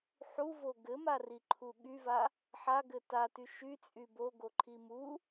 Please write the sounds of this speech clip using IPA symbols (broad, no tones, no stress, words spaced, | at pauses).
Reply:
ħuvo ɡɘmariǃʰu ɠyva | ħaɡɘ taty ʃyt͡sʼy boɡoǃʰi mu